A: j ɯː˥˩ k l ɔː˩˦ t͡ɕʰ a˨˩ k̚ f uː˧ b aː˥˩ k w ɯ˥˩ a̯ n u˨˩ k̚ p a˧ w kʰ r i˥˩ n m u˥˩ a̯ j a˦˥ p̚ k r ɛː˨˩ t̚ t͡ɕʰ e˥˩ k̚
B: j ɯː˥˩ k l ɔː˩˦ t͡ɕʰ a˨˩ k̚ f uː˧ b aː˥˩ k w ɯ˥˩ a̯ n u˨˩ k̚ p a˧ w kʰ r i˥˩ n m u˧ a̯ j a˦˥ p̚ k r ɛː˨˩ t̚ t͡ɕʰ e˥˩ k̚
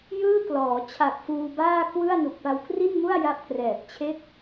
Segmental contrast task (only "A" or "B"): A